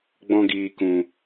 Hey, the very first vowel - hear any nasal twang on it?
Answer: yes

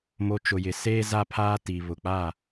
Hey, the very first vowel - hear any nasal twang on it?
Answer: no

